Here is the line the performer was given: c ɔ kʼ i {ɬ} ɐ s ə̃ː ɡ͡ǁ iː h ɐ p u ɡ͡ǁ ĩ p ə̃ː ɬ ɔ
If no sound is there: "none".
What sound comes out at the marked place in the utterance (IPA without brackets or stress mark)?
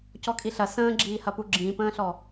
ɬ